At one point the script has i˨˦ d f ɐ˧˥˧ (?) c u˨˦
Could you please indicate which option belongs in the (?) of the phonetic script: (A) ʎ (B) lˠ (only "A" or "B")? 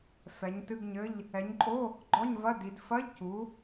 A